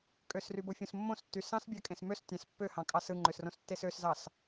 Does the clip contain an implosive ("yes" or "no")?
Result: no